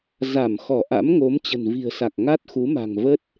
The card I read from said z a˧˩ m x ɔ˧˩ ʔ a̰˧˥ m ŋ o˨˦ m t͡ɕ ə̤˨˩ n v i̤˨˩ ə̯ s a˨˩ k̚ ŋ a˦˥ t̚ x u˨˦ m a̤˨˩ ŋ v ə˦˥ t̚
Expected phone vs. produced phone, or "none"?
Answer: none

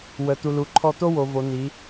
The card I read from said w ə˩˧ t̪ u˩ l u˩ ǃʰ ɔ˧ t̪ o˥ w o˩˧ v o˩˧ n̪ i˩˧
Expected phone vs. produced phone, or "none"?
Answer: none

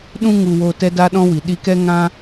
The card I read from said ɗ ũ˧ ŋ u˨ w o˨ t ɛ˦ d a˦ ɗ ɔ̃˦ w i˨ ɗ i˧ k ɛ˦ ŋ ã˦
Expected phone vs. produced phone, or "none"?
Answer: none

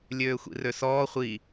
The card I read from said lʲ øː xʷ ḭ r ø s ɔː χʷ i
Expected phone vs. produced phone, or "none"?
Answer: none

